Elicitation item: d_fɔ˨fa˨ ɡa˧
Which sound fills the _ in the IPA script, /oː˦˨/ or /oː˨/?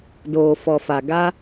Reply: oː˨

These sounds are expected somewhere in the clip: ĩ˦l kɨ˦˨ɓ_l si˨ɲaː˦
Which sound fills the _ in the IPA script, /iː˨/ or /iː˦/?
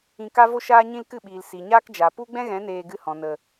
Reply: iː˨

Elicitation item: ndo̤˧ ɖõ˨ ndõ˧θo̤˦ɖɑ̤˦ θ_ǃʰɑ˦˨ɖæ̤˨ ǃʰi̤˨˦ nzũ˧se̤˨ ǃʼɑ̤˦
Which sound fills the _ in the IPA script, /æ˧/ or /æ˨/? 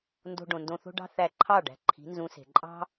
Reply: æ˧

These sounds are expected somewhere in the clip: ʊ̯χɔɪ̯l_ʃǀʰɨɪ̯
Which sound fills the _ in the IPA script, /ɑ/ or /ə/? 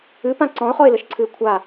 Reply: ə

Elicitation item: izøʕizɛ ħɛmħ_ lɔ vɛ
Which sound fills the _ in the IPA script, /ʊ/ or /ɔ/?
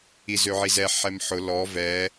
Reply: ʊ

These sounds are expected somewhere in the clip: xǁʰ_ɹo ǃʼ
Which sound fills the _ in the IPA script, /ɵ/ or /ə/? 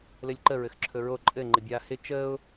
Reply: ɵ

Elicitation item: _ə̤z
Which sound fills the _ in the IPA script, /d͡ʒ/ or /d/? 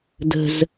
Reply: d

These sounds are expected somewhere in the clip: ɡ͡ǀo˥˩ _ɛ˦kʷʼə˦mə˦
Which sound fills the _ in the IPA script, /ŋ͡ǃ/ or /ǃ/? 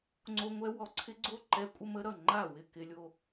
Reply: ǃ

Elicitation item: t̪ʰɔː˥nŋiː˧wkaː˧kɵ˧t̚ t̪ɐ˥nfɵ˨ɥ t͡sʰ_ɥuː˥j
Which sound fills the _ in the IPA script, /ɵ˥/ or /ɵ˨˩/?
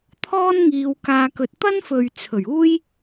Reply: ɵ˨˩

